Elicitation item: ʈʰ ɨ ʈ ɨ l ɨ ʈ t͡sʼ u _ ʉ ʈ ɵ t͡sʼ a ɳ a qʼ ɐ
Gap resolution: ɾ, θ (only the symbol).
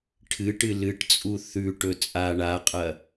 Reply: θ